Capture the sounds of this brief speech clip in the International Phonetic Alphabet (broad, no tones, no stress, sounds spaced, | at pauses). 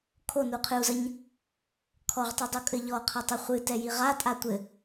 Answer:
kʰ o n u qʰ ɨ u̯ z ɐ ɲ | kʰ ɔ ʁ tˤ u dˤ o kʼ ɘ ʎ ɔ qʰ ɐ tˤ ɛ χʷ ɨ t ɛ j i ʁ a tʼ a tʷ ɘ